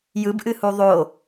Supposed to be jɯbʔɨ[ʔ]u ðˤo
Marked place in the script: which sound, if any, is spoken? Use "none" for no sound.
h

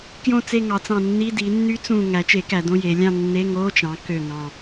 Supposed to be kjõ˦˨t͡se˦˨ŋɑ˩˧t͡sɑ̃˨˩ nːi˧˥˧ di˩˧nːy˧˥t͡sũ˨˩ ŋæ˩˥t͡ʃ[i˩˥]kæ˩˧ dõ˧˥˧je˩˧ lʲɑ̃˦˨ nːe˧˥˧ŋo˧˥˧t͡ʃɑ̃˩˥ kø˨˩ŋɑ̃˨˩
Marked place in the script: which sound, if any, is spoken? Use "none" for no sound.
e˩˥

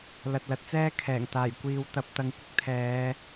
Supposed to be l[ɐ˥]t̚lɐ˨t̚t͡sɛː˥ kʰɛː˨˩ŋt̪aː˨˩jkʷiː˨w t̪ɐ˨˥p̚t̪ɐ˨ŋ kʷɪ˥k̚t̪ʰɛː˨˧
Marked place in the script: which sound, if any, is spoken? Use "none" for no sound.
ɐ˨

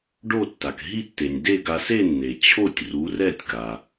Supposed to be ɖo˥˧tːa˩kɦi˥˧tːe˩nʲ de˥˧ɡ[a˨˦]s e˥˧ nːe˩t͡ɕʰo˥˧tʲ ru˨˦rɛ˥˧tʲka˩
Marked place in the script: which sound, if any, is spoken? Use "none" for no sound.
a˨˦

